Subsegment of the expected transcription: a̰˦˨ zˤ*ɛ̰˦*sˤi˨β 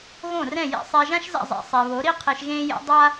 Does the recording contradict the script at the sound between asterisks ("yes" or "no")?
yes